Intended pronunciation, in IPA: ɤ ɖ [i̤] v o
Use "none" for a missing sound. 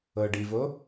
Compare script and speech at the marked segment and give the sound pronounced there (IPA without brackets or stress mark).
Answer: i